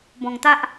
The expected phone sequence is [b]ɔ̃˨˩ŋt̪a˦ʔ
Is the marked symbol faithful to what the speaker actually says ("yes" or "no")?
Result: yes